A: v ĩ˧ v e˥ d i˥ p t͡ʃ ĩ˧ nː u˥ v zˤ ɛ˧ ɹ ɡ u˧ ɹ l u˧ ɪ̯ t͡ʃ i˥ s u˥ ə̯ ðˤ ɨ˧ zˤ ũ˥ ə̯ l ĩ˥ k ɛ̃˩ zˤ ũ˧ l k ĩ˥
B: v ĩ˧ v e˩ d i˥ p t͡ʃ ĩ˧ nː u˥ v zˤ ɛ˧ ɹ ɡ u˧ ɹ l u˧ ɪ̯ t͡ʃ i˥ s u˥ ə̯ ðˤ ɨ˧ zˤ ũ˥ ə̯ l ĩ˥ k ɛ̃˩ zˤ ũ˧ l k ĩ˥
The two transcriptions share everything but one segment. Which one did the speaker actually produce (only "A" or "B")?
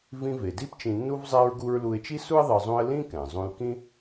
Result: B